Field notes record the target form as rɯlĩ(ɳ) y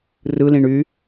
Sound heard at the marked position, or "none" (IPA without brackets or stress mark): ɳ